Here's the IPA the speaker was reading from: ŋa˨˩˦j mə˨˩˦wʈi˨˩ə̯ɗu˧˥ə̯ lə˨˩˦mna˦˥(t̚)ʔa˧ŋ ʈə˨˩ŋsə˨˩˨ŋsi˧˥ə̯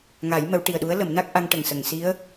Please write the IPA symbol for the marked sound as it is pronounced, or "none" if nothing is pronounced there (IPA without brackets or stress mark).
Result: k̚